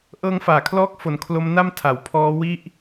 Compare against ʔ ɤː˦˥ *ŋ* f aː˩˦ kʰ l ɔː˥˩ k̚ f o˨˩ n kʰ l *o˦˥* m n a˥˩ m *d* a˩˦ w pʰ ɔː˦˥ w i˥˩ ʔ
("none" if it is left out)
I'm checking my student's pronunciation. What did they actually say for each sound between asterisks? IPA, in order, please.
ŋ, o˦˥, tʰ

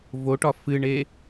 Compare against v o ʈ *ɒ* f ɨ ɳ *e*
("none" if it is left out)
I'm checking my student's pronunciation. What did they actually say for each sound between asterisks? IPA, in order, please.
ɒ, e

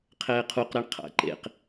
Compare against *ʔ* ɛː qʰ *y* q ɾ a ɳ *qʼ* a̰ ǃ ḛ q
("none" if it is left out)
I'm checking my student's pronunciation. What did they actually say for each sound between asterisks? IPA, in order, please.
qʰ, u, qʰ

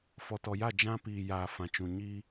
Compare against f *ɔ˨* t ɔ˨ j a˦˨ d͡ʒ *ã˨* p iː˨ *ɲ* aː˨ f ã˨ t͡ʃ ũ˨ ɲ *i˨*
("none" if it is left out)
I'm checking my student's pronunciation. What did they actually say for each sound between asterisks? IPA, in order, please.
ɔ˨, ã˦, j, i˦

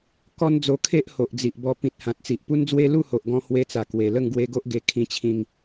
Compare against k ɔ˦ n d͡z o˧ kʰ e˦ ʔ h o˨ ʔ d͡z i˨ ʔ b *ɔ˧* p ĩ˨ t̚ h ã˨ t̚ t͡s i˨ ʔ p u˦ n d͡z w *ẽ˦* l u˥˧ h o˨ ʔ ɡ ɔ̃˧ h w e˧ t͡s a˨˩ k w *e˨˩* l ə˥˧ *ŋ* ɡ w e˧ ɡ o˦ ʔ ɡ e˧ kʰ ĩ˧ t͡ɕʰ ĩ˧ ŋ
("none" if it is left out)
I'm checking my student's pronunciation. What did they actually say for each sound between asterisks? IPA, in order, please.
ɔ˧, e˦, e˨˩, ŋ

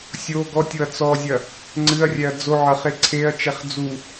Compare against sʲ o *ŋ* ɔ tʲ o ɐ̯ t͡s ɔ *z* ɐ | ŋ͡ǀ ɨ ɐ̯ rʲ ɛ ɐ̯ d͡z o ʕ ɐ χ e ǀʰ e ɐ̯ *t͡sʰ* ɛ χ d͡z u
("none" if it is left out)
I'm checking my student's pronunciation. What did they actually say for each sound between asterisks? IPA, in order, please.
ɡ, zʲ, t͡ʃ

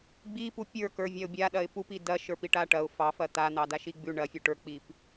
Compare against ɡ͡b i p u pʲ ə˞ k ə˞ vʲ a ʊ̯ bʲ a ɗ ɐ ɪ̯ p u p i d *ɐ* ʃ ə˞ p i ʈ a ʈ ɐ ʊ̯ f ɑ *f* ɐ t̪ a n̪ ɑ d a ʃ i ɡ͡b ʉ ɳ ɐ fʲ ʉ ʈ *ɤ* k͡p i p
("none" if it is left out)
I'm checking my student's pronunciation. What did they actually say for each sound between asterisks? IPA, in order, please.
ɐ, f, ə˞

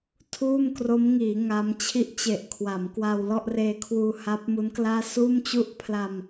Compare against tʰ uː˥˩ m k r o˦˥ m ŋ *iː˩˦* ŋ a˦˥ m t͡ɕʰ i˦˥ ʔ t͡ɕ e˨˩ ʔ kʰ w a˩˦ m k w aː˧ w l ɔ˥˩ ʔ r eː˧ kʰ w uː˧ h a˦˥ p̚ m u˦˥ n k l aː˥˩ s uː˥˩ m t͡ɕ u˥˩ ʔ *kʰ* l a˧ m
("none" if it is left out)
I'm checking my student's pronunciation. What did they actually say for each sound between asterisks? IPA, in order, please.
iː˩˦, pʰ

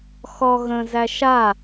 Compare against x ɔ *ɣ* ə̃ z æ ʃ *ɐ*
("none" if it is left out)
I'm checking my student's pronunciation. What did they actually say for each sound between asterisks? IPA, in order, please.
ɣ, a

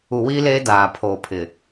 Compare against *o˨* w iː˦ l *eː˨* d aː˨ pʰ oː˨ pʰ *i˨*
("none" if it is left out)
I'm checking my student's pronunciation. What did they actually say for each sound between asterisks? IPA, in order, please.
u˨, eː˦, ɪ˨

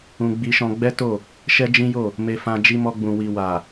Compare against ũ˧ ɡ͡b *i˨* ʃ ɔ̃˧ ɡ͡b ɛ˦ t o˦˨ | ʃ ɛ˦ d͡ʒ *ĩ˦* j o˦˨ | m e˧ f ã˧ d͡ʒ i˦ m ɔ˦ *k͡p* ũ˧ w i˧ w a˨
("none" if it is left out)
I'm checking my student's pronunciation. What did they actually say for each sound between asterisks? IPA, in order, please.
i˧, ĩ˦, ɡ͡b

